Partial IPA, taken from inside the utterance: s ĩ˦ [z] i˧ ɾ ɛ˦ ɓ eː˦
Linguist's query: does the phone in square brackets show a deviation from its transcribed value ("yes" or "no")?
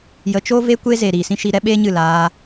yes